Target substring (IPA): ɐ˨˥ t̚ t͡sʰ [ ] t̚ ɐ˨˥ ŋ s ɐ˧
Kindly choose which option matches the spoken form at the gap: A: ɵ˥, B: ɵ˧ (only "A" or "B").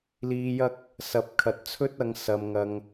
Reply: A